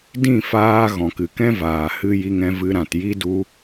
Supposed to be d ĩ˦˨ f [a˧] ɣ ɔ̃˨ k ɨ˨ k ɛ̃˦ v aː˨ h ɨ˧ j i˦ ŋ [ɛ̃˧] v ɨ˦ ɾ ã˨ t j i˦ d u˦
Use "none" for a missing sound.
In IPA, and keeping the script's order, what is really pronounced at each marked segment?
aː˧, ɛ̃˦

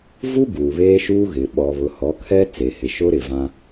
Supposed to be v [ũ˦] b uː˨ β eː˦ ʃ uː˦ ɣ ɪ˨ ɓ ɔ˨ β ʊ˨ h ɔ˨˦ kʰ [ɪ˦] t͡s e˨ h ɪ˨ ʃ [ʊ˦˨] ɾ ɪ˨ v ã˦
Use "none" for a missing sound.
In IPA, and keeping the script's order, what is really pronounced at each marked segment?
u˦, ɛ˦, ʊ˦

